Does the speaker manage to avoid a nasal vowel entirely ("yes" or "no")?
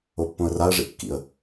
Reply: no